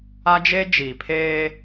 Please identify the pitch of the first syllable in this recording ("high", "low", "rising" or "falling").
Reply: high